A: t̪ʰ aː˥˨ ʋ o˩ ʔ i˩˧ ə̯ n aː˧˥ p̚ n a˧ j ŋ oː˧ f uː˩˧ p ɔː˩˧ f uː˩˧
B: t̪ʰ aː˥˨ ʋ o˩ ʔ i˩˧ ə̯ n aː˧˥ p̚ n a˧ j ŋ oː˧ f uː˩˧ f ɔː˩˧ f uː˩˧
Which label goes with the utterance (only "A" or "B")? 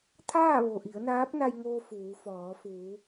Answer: B